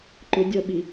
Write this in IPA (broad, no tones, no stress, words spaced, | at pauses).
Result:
ǃʊ dʲʌɓi